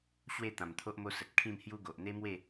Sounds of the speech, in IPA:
ɕ w e˥˧ t̪ ã˨˩ m t̪ʰ o˦ ʔ m o˦ s ə˨ t̚ kʰ ĩ˥˧ m h j u˦ ɡ o˨ ʔ n̪ e˦ m w e˥˧

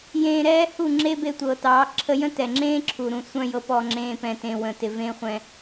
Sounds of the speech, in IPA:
j ẽː˧ ɾ ɛː˦ h u˦˨ ŋ͡ǁ e˦ b e˧ tʷ ɤ˨ t ɑː˨˦ ǁʰ ə˦ j ə̃˦ t ɛ˨ ŋ͡ǁ ẽː˦ ǁʰ u˨ ɾ ũ˨ sʷ œ̃˦ j ɤ˧ p ɔ˧ ŋ͡ǁ ẽː˧ p ɛ̃˨ t ẽ˨ w ə̃˨ t ɪ˨ v ẽ˦ χʷ ɛ̃˧

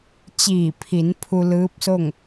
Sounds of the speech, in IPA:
t͡ɕ iː˧˩ pʰ i˩˧ n pʰ u˧ l ɯː˧˥ p̚ s o˥˨ ŋ

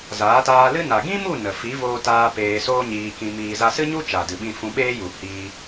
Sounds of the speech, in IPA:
z aː˨˦ t aː˧ l ɨ˦ n a˨ ɡ ĩ˦ m u˦˨ n ə˨ f i˨˦ v oː˧ t aː˧ p eː˧ s oː˦ ɲ iː˧ k ĩ˧ m iː˧ z a˧ s ɨ˦ ɲ u˦ t͡ʃ a˨ d ɨ˨ ɓ ĩ˧ f ũ˧ ɓ eː˦ j u˨ h iː˧

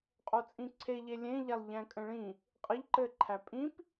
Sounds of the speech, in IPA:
qʼ o t͡sʼ ĩ ǀʰ e ʎ e lʲ ẽ ʎ æ lˠ ʎ æ̃ kʼ ə̃ ɭ ĩ | qʼ ə ʎ ǃ ɘ ǃʰ æ pʼ ĩ p

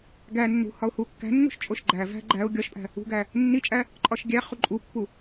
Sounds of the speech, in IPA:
ɡ æ nː ṳ h ɒ ʊ̯ h u kː æ̤ nː ṳ ʃ t͡ʃʼ o ʃ ɡ͡ǃ æ v æ̤ ɡ͡ǃ æ ʊ̯ ɡʲ ɒ ʃ pʼ æ̤ | ṳ ɡ æ | nː i t͡ʃʼ æ | ǃʼ ɒ ʃ ɡʲ æ χ u ǃʼ u pː u

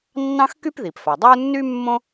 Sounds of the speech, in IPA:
nː ɑ̃˥ x k y˥ p ð i˩ p f a˩ dˤ ɑ˥ u̯ nː y˥ mː õ˥

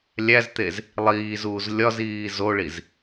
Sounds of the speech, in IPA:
lʲ æ z t̪ e z | lˠ iː z uː z lʲ ɒ z iː z o ɭ i z

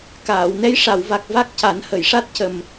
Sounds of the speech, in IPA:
k aː˨˩˨ w n ɛ˧˥ j ʂ a˨˩˨ w v a˨˩ k̚ v a˦˥ k̚ c a˨˩˦ n h ə˨˩˨ j ʂ a˦˥ t̚ c ə˨˩ m

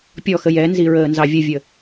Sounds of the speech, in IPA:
pʲ ɔ x ə j ɛ n z i ɹ əː n z ɑ vʲ ə vʲ ə

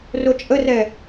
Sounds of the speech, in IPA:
r o t͡ʃʼ ə r ɛ

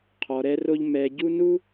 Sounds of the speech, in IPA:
qʰ ɔ˧ ɾ ɛ˦ r o˦ ʎ m ɛ˧ ɟ u˦ n u˦

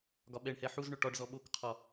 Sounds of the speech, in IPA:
ɡ ɒ ɓ ɛ ɳ h ɛ ħ u z ɳ ɵ ʈ ɒ ɖ z ɔ ɓ o k qʰ ɒ

